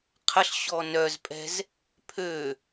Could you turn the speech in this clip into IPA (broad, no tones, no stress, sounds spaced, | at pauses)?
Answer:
qʰ ə ɬ ɕ ɔ n œ z pʼ ɛ̤ z | pʰ ø